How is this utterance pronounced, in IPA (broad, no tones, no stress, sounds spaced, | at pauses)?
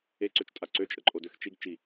e ǀ ø t͡ʃ tʼ a ǀ ø t͡ʃʼ ə ǃʼ o d ø x t͡ʃ i ɡ t͡ʃ i